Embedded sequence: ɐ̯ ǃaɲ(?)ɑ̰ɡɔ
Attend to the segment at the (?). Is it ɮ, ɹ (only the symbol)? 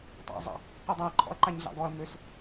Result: ɮ